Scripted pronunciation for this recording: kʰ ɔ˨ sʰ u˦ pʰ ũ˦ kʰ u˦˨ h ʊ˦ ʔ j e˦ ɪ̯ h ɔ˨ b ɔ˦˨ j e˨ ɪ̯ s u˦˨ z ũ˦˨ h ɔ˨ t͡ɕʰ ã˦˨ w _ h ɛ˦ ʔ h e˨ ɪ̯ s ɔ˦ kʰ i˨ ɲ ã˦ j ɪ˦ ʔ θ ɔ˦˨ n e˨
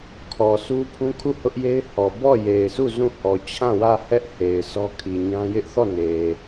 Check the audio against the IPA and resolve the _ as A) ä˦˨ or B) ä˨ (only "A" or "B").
A